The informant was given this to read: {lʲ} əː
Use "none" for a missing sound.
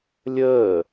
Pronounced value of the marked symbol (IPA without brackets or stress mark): lʲ